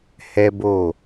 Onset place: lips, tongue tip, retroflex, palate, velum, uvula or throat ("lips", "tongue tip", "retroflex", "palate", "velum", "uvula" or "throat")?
throat